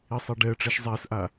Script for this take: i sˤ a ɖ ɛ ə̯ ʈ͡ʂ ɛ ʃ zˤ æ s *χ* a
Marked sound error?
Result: yes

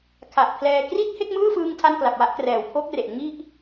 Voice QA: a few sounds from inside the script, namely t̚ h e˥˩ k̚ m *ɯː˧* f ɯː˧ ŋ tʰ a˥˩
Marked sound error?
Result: yes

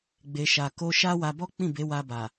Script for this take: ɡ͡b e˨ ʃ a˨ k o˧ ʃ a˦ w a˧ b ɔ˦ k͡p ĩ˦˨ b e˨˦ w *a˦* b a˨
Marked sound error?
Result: yes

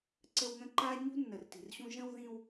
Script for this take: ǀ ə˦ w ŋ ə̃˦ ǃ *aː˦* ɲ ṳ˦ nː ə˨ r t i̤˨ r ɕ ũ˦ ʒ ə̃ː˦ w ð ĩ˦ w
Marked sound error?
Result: no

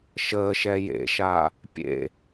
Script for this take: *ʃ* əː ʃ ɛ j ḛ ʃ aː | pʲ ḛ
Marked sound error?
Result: no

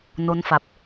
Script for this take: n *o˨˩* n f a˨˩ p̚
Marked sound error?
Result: yes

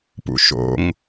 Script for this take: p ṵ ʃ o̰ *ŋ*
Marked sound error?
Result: no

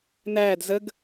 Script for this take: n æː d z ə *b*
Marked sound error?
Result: yes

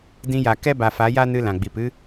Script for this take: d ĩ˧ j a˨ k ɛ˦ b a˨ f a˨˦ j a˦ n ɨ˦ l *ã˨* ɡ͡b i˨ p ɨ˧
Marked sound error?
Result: no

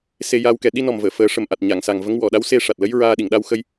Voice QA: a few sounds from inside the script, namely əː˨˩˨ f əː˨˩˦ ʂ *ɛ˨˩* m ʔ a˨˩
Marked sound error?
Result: yes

